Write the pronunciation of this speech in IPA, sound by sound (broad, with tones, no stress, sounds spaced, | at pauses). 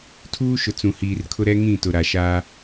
tʰ uː˦ ʃ ʊ˨ t͡s ũ˨ h iː˨ r kʰ ʊ˦ ɾ ɛ˦ ŋ ĩ˦˨ t ʊ˨ ɾ a˨ ʃ aː˦